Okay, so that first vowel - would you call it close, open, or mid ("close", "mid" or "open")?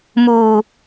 close